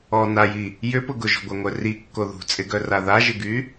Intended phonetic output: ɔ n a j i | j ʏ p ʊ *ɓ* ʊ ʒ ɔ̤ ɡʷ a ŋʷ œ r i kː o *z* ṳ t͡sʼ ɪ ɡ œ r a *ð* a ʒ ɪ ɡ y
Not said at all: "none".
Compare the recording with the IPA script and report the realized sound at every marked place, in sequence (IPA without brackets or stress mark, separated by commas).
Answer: ɡ, ð, ð